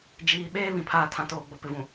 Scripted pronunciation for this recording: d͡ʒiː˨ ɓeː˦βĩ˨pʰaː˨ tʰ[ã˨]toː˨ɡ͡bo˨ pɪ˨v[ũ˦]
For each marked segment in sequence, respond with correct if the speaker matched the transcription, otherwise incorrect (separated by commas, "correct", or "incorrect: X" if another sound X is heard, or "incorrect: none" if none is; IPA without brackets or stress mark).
correct, incorrect: ũ˨